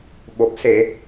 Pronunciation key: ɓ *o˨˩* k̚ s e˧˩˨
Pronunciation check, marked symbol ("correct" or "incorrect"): correct